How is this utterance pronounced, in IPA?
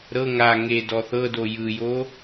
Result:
ɾɤ ŋa ŋe dɔθɤdo jɯjo

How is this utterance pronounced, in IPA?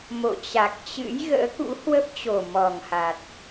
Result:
mo̰˧˨t͡ɕa˨˩k̚t͡ɕɨ̰˧˥j ɣə̰ː˧˥kṵ˧˥hwə˦˥p̚t͡ɕo˨˩ mɔ˨˩ŋha˨˩t̚

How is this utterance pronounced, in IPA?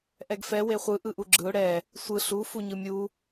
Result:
ʔɛɡfɛ weχʷɯ ʔɯʔuɡ͡ǁɯʊ̯ ɽɛ | sʷɯ ɬu fuɲɯmʲu

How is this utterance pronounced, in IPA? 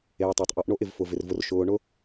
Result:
eː˨tˤa˨tˤʔɔ˨˦ʔ ɳo˦ʔɪ˨v fʊ˨vɪ˨rvʊ˨r ʃʊː˨ɳʊ˦

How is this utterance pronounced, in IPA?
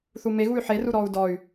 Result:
θumeɣuy̯ ħeruɾɔːu̯ dɔy̯

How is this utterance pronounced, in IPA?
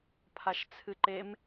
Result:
pʰaʃt͡sʰɨǃem

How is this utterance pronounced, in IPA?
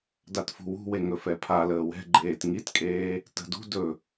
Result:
datfṳwṳwe ŋɵfɛpʰaləː wɛ̤ ɡ͡ǃeːtŋitkʼeː | tə̤ dṳ dɵ

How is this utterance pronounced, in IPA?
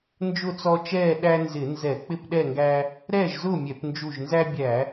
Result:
nd͡ʒʊ˥˨t͡sɔ˦t͡ʃɛː˥˨ ɗæ˦nzɪ˧˩˧nzɛ˧˩˧ k͡pɪ˥˨pɗɛ˥˨ŋɡæ˦ | ɾɛː˥˨ʒzʊː˥˨mʲɛ˧˩˧p nd͡ʒu˧˩ʒnzæ˦bʲæ˧˩˧

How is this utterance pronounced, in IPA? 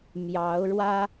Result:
mjɑ˧˥ʊ̯ɻwä˥

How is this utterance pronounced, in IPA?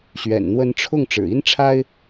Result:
ɕɥɛ̰˨˩nn̪wə˧˥nʈ͡ʂʰʊ˥˩ŋ ʈ͡ʂɻ̩˨˩i˥nʈ͡ʂʰa˥ɪ̯

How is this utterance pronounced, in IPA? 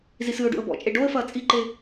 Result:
zisɨʊ̯ɖṵə̯ bɔ̰t͡ʃʼe ɖoə̯fɐː t͡sʼiǃe

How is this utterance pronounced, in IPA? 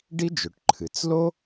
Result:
ɖi˥d͡ʒɵ˩ʈ ǃʰɨ˩t͡slo˥

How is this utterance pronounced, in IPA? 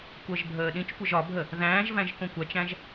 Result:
kʷɜʒbʱəːɗĩt͡ʃkʷəʒ ɒbʱə | ðæ̃ːʒvæ̃ʒ kõkʷæt͡ʃæ̃ʒ

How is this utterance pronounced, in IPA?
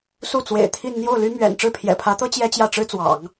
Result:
su˥˩t͡swḛ˨˩ɪ̯t̪ʰi˥˧n n̪jo˥˩ʊ̯ly˥mɥɛ̰˨˩n ʈ͡ʂɻ̩˥˩pʰjɛ̰˨˩pʰä˧˥t̪ɤ˥ t͡ɕjɛ˥t͡ɕjä˥˩ʈ͡ʂɻ̩˥t͡swɑ̰˨˩˦ŋ

